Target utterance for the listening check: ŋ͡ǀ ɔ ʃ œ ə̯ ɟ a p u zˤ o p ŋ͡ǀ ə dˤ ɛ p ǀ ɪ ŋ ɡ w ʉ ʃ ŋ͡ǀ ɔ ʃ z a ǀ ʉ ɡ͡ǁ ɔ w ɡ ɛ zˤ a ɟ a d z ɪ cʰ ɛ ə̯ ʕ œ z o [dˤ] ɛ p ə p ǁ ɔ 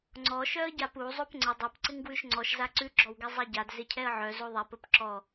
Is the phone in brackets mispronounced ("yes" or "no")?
yes